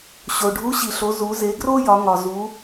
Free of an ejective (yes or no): yes